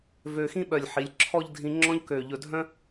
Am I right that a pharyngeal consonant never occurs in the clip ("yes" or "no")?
no